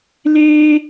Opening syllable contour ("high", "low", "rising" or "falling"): high